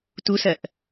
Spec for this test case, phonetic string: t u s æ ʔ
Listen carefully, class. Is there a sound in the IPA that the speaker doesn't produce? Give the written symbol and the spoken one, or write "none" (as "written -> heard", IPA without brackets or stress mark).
æ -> ɜ